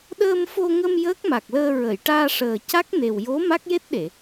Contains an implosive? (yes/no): yes